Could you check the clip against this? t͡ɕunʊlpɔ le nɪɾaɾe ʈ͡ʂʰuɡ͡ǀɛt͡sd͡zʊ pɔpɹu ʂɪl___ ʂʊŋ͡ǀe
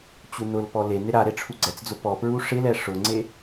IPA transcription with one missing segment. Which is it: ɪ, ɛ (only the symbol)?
ɛ